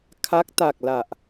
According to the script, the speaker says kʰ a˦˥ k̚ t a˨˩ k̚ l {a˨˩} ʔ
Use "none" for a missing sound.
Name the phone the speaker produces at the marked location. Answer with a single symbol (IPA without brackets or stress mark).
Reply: a˨˩